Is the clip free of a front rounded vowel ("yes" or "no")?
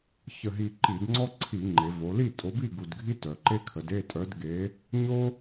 no